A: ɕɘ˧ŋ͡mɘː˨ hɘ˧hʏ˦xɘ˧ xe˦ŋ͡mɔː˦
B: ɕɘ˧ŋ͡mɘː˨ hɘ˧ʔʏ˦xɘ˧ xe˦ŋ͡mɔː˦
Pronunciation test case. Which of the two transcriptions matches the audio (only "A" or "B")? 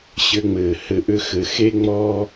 B